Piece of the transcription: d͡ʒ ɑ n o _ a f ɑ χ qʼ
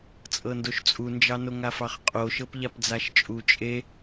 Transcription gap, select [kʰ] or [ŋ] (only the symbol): ŋ